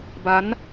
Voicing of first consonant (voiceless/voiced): voiced